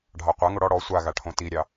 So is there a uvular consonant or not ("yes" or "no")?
yes